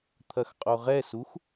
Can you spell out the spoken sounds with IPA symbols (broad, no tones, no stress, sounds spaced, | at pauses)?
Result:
t̪ʰ ɐ x qʼ o ʁ ɛ s u x